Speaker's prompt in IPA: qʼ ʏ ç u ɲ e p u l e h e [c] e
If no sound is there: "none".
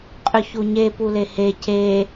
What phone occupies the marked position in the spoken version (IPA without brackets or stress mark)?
c